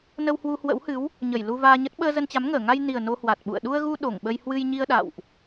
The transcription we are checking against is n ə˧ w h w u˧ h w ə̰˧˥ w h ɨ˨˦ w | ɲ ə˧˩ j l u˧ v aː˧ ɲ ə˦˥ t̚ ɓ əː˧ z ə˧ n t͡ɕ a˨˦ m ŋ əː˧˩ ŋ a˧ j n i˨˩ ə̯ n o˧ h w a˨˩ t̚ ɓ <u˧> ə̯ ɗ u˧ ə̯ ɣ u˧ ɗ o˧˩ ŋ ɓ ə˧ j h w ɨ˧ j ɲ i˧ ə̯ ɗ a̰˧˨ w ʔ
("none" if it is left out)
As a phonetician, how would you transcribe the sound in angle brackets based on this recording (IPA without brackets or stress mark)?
ṵ˧˨